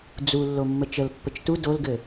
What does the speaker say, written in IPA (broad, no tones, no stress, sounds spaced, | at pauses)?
d͡z u lː o mː ə t͡ʃ ə l pː ə t͡ʃ t u d o l ɡ ɘ